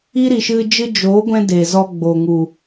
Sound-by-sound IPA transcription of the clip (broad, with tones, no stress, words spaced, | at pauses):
i˦ɾi˨ʃɨ˧d͡ʒɨ˦ d͡ʒoː˨˦ɡʷɛ̃˧ de˨zɔ˧ɡ͡bo˨ŋu˨